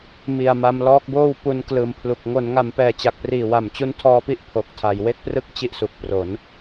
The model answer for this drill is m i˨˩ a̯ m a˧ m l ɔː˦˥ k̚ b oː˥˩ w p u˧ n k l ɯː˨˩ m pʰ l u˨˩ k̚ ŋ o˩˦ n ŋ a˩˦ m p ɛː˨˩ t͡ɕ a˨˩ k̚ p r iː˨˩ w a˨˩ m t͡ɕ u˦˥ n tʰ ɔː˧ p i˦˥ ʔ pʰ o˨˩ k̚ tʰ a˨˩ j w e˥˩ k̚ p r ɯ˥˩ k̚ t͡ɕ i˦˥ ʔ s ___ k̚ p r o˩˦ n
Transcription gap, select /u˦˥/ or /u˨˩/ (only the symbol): u˨˩